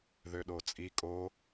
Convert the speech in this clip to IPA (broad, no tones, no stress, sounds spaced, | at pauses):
ð ø ɗ o t͡sʼ i kʼ o